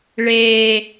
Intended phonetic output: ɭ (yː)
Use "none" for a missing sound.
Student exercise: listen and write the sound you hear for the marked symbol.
eː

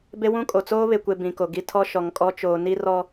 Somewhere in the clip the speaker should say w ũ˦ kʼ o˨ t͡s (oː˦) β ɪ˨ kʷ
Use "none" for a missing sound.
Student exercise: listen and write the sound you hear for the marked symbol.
oː˦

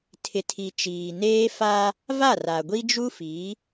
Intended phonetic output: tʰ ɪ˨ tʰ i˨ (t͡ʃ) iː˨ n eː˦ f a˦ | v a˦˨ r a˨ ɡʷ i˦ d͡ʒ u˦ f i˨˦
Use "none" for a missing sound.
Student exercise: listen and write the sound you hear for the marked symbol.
t͡ʃ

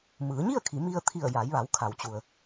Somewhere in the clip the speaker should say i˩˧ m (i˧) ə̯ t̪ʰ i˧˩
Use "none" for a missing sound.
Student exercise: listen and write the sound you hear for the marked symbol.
i˧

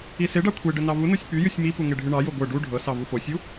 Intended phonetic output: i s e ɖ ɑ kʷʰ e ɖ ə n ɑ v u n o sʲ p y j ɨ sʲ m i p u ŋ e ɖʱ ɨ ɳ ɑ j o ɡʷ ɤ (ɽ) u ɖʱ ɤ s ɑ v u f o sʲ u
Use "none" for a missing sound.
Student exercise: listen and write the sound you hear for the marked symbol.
ɖ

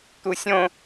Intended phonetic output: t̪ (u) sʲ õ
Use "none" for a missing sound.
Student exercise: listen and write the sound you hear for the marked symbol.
u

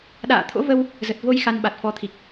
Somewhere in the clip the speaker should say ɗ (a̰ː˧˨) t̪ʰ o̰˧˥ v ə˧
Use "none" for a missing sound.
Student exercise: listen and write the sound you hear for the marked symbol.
a̰ː˧˨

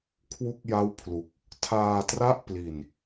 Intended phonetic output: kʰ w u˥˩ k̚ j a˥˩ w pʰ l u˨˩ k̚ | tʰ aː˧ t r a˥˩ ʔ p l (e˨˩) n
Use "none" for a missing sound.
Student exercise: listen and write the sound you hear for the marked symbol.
i˨˩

